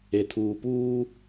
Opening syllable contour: low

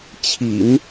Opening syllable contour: low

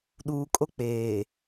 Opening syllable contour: low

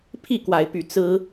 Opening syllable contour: falling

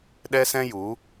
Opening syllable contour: high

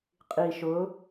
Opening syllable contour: low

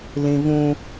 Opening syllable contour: high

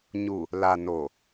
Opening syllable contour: low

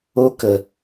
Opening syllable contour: high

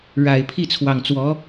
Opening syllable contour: low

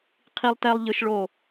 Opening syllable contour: high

